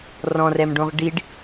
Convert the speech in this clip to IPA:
rɔ̃rɛmɖõʁ ɖiɖ

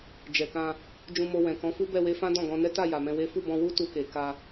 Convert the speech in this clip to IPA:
d͡ʒɛ˨kã˧ | d͡ʒũ˧mo˧wɛ̃˨ kɔ̃˨˦fu˦ bɛ˦˨we˧fã˦ dɔ̃˦˨ɡɔ̃˧ nɛ˦ta˦˨ ja˨mɛ̃˧we˦ fu˦˨bɔ̃˧wu˦ tu˧ke˨ ka˧

